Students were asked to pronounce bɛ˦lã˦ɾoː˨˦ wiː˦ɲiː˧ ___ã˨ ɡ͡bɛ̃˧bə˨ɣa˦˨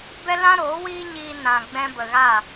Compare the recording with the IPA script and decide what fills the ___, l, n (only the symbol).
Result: n